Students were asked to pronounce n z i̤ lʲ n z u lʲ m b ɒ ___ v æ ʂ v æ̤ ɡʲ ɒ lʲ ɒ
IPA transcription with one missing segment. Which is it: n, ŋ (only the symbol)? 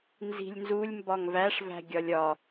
ŋ